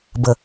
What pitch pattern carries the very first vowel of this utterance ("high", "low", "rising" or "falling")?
low